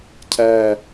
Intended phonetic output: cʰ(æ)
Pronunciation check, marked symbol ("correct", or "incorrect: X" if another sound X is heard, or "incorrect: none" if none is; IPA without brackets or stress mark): correct